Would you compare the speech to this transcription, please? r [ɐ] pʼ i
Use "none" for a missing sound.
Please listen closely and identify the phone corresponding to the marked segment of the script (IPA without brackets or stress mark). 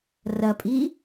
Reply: ɐ